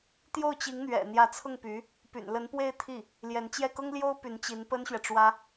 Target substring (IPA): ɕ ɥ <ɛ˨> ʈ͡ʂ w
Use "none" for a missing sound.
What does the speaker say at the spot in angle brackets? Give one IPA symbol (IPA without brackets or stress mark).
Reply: ɛ˨